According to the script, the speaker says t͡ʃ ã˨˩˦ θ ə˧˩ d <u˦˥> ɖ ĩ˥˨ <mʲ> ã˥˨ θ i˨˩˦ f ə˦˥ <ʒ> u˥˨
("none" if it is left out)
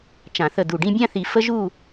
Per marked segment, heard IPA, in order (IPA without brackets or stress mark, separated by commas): u˧˩, bʲ, ʒ